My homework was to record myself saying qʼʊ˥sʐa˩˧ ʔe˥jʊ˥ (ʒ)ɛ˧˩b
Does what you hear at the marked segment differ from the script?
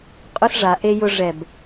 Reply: yes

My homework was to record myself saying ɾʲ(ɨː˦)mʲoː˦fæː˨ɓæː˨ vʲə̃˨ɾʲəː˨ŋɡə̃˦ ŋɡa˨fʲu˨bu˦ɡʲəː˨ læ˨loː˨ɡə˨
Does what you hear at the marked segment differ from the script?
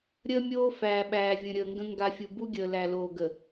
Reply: yes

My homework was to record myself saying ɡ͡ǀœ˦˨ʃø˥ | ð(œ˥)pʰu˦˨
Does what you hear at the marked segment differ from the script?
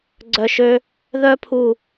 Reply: no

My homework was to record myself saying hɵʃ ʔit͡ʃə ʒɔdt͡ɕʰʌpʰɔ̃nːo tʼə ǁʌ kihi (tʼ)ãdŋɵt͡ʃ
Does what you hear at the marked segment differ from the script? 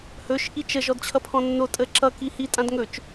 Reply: no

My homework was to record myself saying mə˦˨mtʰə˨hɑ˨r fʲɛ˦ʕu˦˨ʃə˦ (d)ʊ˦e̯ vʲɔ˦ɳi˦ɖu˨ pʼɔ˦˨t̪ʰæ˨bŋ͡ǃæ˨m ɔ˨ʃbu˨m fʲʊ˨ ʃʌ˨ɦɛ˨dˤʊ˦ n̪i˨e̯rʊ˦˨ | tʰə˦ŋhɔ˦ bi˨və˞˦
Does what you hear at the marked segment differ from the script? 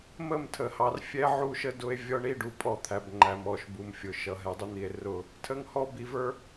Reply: no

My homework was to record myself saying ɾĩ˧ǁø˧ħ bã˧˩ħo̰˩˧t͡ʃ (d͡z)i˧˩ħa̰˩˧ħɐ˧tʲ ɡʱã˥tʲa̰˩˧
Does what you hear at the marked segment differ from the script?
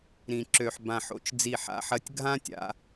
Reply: no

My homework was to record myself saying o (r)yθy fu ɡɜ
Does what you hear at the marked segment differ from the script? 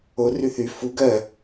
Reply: no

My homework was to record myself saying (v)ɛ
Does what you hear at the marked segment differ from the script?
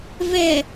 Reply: no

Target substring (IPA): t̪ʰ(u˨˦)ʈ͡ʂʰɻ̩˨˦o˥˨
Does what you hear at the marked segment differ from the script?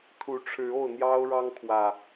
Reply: no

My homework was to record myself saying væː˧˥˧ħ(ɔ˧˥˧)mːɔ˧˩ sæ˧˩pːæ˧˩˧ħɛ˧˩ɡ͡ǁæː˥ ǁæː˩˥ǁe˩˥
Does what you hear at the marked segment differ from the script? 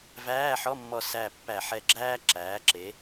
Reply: no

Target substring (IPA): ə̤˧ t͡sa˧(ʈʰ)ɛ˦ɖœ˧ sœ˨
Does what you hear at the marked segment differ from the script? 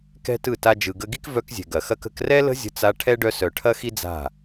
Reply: no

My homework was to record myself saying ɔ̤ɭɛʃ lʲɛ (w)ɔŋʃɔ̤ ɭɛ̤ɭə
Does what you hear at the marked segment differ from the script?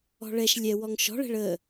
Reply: no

